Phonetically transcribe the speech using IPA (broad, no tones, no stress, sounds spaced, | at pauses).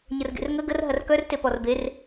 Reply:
ɲ ə r ɡ ḛ r ŋ ə ɡ ə r ɦ ɐ r k œ r t e p ɔ r b e r